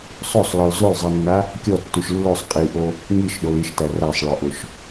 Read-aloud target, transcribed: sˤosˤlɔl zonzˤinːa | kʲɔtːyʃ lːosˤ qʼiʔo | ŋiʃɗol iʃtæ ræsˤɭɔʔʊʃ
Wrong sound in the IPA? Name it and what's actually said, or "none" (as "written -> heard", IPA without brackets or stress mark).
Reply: n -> l